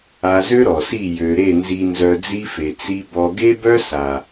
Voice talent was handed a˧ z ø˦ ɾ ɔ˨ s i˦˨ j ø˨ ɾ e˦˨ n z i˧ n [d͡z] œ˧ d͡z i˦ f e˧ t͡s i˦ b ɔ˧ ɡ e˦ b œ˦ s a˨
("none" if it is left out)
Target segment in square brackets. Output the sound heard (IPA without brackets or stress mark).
z